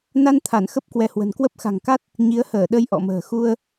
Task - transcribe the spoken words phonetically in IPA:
n a˧ n t̪ʰ a˧˩ n x ə˦˥ p̚ k w ɛ˨˦ h w ə̤˨˩ n k w ə˦˥ p̚ x a̤˨˩ ŋ k a˦˥ t̚ | ɲ i˨˦ ə̯ h əː˧˩ ɗ ə˧ j ʔ ɔ̰˧˨ m ə̤ː˨˩ x u˧ ə̯

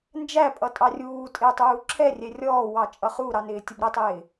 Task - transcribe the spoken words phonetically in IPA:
n d͡ʒ æ pʼ ʌ tʼ ɑ rʲ uː tʼ ɪː tˤ uː ǁʰ ɛ rʲ ɛ rʲ ɔː w ɑ t͡ʃʼ ʌ χ u ɾ ɑ n ɪː tʲ ə b ɾ ə tˤ ɪː

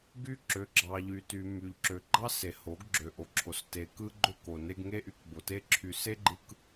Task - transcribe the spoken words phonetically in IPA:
ɡ y˦ ǁ ø˨˦ ɡ͡ǁ ɑ˨ ʎ y˨ t y˨ m y˨ ʎ ǁ ø˨ ɡ͡ǃ ɑ˦ s e˨ h o˨˦ ɡ ɡ͡ǁ ø˨ ʔ o˨ ǁʰ o˨ s t e˨ k ɯ˦ ɡ͡ǃ ø˦ k o˨ n e˦ ɡ ŋ e˦ ʔ y˨˦ k b o˨ t e˦ ǁʰ y˨ s e˦ ɡ͡ǃ ɯ˨ k

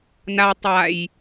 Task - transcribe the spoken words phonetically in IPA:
n a tˤ a j

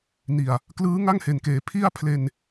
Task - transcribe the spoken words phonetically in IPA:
n i˨˩ a̯ | k l ɯː˦˥ ŋ a˥˩ ŋ h e˨˩ n k eː˩˦ pʰ i˥˩ a̯ pʰ l e˧ n

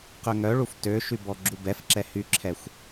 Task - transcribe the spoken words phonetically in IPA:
q ø ŋ œ ɭ u f t ø ʃ y b ɔ ɡ͡ǁ u b ɛ f ǁ ɛ h y ǁʰ ɛ xʷ

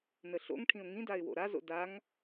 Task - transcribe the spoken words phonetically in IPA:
n ə ɬ o̰ ŋ ʈʰ ĩ ʊ̯ ŋ ĩ d a ɪ̯ w o̰ ɾ a z o̰ d a ŋ

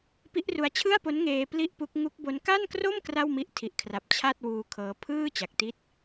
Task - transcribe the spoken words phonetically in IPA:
p i˦˥ ʔ r u˧ a̯ t͡ɕʰ ɯ˥˩ a̯ p o˦˥ n ŋ eː˧ p l i˥˩ ʔ p u˦˥ k̚ ŋ u˦˥ k̚ b o˦˥ n k a˥˩ n k r o˥˩ m k r a˥˩ w m i˦˥ ʔ tʰ i˨˩ ʔ kʰ r a˨˩ p̚ t͡ɕʰ a˥˩ t̚ w uː˧ kʰ ɤː˦˥ pʰ ɯː˥˩ t͡ɕ a˨˩ k̚ t i˥˩ t̚

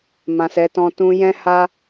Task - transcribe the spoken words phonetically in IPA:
m ã˨ s ɛ˨˦ t ɔ̃˧ t ũ˧ j ɛ̃˦ h a˦

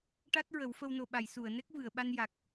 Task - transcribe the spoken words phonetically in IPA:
ʈ a˦˥ t̚ ɹ ə˨˩˦ w f ə˧ w n o˨˩ ɓ a˨˩˨ j s u˨˩˨ ə̯ n ɛ˦˥ k̚ v ɨ˨˩˨ ə̯ ɓ a˧ n j a˨˩ k̚

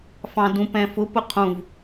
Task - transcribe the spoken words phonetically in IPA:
f ɑ̃ d ũ p ɛ̃ f ʊ p ʊ qʰ ũ v

